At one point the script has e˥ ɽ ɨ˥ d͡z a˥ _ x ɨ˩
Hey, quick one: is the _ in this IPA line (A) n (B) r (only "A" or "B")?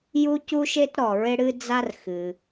B